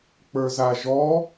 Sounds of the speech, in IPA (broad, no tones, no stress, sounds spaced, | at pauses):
k͡p ə˞ z a ʒ ɔ